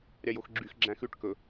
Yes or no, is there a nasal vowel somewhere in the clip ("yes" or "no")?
yes